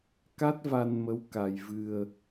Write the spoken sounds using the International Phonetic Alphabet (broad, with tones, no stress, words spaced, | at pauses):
ka˦˥t̚va˧nmə˧˥w ka˧j vɨ˧ə̯